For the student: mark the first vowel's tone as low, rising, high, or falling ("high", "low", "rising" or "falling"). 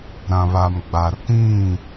low